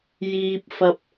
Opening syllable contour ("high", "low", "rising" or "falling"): low